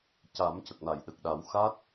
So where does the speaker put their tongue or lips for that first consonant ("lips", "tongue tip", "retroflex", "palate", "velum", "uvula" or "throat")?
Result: palate